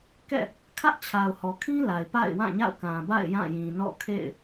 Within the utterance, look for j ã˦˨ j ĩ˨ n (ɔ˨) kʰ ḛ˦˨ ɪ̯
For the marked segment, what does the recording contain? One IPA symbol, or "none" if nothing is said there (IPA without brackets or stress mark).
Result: ɔ̰˦˨